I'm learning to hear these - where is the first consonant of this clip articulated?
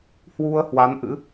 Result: throat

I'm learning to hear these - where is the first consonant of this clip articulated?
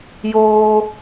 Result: palate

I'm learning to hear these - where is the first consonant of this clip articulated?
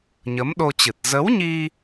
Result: palate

